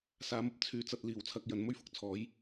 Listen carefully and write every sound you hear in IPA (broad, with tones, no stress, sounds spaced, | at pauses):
s aː˨˧ m ɐ˧ p̚ t͡sʰ yː˧ t͡s ɐ˧ t̚ l iː˨˩ w t͡sʰ ɐ˨ k̚ j ɐ˨˥ n m ɵ˥ ɥ f ʊ˨˥ k̚ t͡sʰ ɔː˨˥ j